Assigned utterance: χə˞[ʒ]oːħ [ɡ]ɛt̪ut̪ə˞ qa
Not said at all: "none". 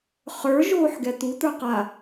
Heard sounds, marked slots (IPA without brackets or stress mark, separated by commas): ʒ, ɡ